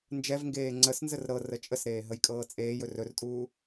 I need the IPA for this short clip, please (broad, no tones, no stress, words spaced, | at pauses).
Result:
nd͡ʒɛvŋɡeː ŋ͡ǀəsnzər ɾɤ rət͡ʃʼəsɾeː ɦəjkʼɤːt͡sʼeːjɵ rɵrtʼuː